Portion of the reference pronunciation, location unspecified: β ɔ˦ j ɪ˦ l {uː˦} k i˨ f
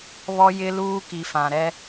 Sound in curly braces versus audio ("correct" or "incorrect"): correct